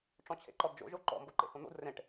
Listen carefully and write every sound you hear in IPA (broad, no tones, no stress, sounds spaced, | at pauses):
ʈ͡ʂ ɔ̃ t͡ɕʰ ḛ ǃ ɔ d d͡ʒ o̰ ʒ o ǃ ɔ̰ m b o ǃ ḛ h õ n̪ o̰ d r ẽ ʈ